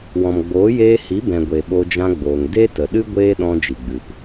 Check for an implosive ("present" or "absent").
present